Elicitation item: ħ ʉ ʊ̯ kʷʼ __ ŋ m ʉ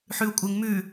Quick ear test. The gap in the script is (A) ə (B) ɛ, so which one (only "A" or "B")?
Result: A